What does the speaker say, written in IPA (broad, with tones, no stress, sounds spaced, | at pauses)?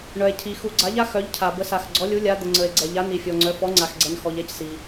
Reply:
ɳ œ˩ e̯ cʰ i˩ x u˩ ɡ͡ǀ a˩˧ ʎ a˩˧ x œ˩˧ ʎ cʰ a˩ b ə˩˧ s a˩ x ɡ͡ǀ ɔ˩˧ lʲ u˩˧ lʲ a˩˧ d̪ ə˩ ŋ͡ǀ ə˩ e̯ ɡ͡ǀ ɛ˩ ʎ a˩˧ n i˩ fʲ ɔ˩ ŋ͡ǀ œ˩˧ f ɔ˩˧ ŋ͡ǀ a˩ x ɡ͡ǀ ɛ˩ n x ɔ˩ ʎ ɛ˩˧ c s i˩